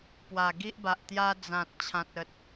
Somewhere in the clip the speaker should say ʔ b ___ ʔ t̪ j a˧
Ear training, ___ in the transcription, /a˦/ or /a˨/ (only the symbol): a˨